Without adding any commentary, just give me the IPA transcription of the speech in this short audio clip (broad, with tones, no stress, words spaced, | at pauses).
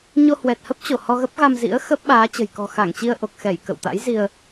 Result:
ɲo˧hwɛ˨˩t̚hə˦˥p̚ t͡ɕo˧˩ hɔ˧ɣə˦˥p̚ ɣa˧mzḭ˧˥ə̯ xə˦˥p̚ ɓaː˨˦t͡ɕə̤˨˩j kɔ̤˨˩xa˧˩ŋt͡ɕi˧ə̯ ʔo˨˩k̚xɛ˧˩j kə̰˧˨wt̪a̰˧˥j zi˧ə̯